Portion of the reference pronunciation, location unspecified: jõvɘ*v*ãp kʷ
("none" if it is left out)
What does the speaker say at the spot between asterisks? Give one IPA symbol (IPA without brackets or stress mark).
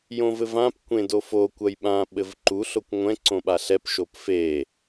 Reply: v